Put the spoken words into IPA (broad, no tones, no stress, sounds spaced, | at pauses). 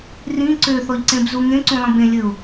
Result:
r ĩ ǀ ø θ ɔ ʎ ǀ ẽ b z u ŋ ẽ ǀ ũ lˠ ĩ b ẽ lʲ ɘ ʊ̯